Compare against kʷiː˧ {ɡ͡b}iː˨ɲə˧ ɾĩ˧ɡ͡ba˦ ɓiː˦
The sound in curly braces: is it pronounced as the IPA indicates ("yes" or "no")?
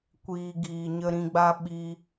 no